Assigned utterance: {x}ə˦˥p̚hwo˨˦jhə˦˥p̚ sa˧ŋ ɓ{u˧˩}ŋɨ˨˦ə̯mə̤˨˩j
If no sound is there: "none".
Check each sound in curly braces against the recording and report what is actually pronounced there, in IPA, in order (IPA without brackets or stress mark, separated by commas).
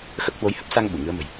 x, u˧˩